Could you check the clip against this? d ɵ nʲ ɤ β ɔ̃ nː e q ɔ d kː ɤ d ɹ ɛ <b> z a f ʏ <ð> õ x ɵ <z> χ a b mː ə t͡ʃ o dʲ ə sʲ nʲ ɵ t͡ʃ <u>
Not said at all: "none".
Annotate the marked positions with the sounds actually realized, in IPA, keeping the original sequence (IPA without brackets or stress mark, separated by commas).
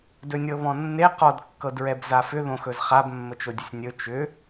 b, ð, z, ʏ